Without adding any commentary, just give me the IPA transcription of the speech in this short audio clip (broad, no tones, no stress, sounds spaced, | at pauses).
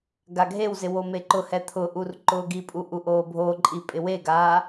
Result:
ɡ a ɡʱ e w z ɪ w o m e ǃ ʊ h ɛ t̪ʰ ʊ ʔ u r ǃ ʊː ɡ i pʼ u ʔ u ʔ oː bʱ o ǃʼ i pʼ ɪ w e ɡ aː